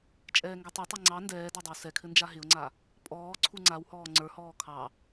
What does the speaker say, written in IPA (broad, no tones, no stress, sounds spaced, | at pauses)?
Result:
t͡ʃʼ ɛː ŋ ɡ ɛ tˤ ɛ tˤ ɛ ŋ͡ǀ ɑ n d ɛː d a dˤ ɪ w s ɛ kʰ ɘ n d͡ʒ a ɦ ɪ ʊ̯ ŋ͡ǀ a | pʼ ɔː ǀʰ u ŋ͡ǀ a w h ɔː ŋ͡ǀ ə˞ h ɔː kʰ ɑ